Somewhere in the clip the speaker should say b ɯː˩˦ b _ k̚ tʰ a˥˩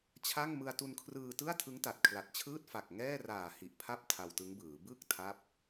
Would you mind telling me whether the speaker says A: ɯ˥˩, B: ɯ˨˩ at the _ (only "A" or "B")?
A